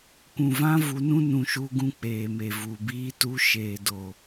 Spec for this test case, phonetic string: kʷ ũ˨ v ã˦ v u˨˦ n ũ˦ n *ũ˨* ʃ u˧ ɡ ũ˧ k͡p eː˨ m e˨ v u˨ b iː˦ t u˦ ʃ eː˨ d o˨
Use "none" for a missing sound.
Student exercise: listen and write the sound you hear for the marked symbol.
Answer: ũ˨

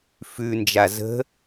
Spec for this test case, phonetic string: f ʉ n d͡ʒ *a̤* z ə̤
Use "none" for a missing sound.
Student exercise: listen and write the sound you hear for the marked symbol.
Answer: a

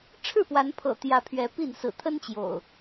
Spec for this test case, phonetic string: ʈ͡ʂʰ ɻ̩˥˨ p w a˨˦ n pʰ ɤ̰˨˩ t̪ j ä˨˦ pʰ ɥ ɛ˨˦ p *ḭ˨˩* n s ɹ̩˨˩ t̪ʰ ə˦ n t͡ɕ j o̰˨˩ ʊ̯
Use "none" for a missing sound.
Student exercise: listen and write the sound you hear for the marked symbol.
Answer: i˥˨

